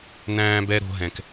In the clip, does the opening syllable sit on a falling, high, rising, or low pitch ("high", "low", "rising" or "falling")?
high